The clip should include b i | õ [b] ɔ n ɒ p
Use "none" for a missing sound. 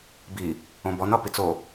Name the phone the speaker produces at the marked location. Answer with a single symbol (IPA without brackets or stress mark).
b